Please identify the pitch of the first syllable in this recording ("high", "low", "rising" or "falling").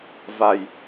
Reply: low